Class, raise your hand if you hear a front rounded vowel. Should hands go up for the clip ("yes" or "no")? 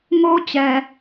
no